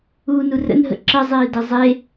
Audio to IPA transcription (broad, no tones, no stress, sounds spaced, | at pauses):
uː n u r ə̰ n ɦ ə̰ ǁ ə zˤ iː d ə zˤ e